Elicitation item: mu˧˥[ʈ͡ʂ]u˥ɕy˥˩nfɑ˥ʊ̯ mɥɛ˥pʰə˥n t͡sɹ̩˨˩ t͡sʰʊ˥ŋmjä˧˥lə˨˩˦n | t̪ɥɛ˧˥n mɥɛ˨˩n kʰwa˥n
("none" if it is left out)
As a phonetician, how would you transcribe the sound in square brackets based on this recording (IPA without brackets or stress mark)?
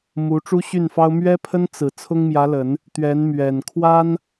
ʈ͡ʂ